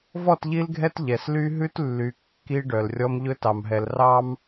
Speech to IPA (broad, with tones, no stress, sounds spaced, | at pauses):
v ɔ˦˨ t ʎ i˦ l ɡʱ ɛ˦ t ʎ ɛ˨ s l y˦ ɦ ʉ˦ t lː y˨ kː i˦ ɖ œ˨ l rʲ ɔ˦ m ʎ ɵ˦ t ɑ˨ m ɦ ɛ˨ l r ɑ˦ m